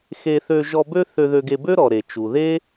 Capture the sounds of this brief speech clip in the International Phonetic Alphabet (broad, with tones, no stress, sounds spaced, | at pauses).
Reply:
x e˧ θ ø˧ ʒ ɔ˧ b ø˦ θ ø˧ ð ø˧ ɡ e˧ b ø˦ ɾ ɔ˨ ɾ e˨ t͡ʃ u˨ ð e˦